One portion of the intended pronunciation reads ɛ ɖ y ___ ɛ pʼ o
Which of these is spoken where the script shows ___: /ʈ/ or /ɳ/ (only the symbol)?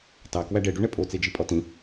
ɳ